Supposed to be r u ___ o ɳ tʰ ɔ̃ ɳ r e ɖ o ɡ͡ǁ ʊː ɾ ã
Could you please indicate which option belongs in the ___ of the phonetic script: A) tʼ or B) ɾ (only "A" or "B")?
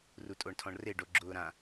A